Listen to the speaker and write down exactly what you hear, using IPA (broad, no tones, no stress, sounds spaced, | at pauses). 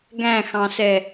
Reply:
ɡ æ̃ x ɑ̃ s ɛ